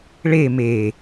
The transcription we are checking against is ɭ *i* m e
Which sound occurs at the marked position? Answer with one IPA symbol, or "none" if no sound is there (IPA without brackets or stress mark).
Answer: e